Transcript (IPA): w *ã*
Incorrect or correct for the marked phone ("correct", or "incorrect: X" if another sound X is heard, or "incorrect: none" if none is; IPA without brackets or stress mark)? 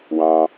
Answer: incorrect: ɑ̃